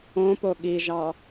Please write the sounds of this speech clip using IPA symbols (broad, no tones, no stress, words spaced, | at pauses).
õpo ɠiʒɑ